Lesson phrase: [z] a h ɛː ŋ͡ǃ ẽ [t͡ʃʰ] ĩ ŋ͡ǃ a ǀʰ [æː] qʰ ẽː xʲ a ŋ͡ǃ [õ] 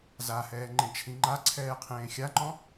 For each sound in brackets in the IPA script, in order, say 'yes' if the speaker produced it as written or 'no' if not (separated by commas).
yes, yes, no, no